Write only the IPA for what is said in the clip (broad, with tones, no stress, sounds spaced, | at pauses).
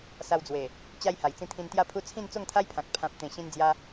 s a˧ w d͡z w e˨˩ | t͡ɕ a˧ j h a˨˩ j t͡s ĩ˧ t̪ʰ ĩ˧ n t̪ j a˦ pʰ u˦ t͡sʰ ĩ˥˧ n t͡s o˥˧ ŋ t̪ʰ a˦ j pʰ ã˨ k̚ pʰ ã˨ p̚ t̪ ẽ˨˩ ɕ ĩ˧ n d͡z j a˧